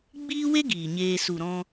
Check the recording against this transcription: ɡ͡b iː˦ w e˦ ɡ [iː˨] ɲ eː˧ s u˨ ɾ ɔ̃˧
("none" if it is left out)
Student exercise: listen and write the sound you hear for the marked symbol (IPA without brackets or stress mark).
iː˨